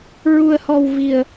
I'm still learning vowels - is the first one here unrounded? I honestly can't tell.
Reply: no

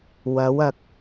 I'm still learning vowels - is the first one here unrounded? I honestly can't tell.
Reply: yes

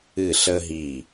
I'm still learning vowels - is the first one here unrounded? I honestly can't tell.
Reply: yes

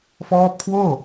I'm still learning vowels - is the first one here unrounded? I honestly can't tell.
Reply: no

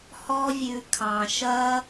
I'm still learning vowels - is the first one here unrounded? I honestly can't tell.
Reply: no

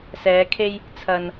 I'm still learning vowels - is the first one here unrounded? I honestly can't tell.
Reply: yes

